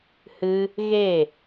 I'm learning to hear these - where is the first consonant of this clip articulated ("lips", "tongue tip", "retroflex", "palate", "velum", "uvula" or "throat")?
throat